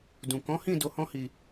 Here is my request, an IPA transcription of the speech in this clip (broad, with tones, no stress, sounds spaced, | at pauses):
d ũ˨ k ɔ̃˨˦ h ĩ˦˨ d o˧ h ɔ̃˦ h i˧